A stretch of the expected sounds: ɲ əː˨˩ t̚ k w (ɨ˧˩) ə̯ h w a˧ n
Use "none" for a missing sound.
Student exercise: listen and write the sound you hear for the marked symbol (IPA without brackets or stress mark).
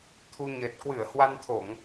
ɨ˧˩